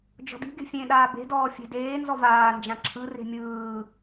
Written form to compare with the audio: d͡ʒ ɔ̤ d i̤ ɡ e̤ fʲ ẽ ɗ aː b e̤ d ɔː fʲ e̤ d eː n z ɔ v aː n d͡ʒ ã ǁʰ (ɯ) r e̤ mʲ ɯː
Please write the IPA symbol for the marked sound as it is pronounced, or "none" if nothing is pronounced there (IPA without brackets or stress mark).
ɯ